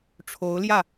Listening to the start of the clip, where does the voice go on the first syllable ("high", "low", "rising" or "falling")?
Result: rising